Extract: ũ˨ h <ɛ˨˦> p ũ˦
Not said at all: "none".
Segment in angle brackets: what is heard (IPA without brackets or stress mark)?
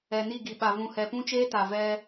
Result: ɛ˨